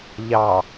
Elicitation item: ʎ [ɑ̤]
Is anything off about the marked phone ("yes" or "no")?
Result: yes